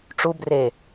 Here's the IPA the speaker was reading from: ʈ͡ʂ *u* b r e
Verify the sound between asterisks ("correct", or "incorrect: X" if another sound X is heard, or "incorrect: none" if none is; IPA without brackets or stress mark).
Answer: correct